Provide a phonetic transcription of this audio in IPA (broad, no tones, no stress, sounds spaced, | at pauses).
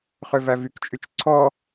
χ ø v æ v y k t͡ʃʼ y t͡ʃ ǀʰ ɔ